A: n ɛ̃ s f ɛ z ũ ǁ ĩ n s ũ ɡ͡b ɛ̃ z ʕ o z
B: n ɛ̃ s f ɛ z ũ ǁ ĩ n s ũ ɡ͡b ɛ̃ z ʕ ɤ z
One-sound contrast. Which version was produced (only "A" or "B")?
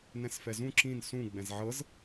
B